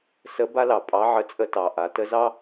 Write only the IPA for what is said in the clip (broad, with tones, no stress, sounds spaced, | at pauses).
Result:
s ə˧˥ b a˥ l ɑ˩ pʼ ɑ˧˥ ʕ ə˧ t͡sʼ ə˧ t ɑ˩ ʔ a˩˧ t ə˧˥ z ɑ˥